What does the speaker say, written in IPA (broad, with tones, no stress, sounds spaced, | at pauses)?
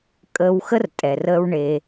kʼ əː˧ w x ə˥ r tʼ ɛ˩ r əː˧ w ɳ e˩